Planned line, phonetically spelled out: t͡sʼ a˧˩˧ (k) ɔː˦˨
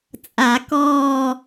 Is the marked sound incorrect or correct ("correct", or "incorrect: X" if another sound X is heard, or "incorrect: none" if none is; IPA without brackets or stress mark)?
correct